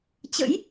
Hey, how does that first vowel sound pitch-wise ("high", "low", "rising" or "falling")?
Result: rising